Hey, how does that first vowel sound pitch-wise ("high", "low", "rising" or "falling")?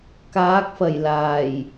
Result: rising